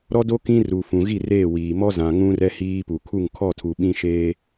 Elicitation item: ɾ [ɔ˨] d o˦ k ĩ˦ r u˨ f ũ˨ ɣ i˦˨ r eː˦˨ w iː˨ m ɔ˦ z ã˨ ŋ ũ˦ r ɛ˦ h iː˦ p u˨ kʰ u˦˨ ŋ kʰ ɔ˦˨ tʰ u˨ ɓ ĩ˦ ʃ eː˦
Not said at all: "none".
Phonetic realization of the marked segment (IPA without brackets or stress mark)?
ɔ˦